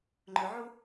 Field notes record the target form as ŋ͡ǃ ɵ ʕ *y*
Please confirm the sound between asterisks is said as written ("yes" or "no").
no